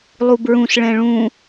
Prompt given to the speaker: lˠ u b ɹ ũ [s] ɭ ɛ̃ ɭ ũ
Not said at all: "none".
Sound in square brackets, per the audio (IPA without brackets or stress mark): s